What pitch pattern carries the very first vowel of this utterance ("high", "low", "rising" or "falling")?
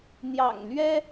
low